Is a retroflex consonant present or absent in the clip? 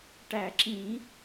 present